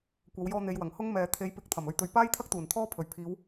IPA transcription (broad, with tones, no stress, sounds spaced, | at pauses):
kʷ ɐ˨˧ w j ɔː˧ n̪ e˨˧ j w ɐ˨˩ ŋ h ʊ˥ ŋ m ɛː˨ t̪ʰ e˨˥ j p ɪ˨˥ k̚ t̪ʰ ɐ˨˩ m ɵ˧ ɥ t̪ ɵ˧ ɥ p aː˥ j t̪ʰ ɐ˥ k̚ t̪ uː˨˩ n t̪ʰ ɔː˥ pʰ ɵ˨˩ ɥ pʰ iː˨˧ w